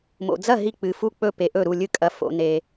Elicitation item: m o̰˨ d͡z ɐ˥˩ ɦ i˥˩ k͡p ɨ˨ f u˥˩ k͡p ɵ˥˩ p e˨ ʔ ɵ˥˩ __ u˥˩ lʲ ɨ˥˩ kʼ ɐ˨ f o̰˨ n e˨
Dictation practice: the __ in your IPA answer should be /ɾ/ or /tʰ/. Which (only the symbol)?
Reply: ɾ